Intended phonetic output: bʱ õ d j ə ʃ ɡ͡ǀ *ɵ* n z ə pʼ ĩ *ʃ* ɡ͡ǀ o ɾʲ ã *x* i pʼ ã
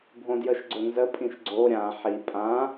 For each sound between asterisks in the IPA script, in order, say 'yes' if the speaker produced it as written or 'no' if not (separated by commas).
yes, yes, no